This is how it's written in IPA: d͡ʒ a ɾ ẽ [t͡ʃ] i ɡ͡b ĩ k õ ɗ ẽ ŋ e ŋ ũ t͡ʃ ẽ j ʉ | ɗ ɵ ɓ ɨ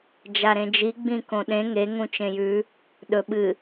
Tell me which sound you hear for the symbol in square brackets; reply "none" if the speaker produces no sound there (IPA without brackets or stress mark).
d͡ʒ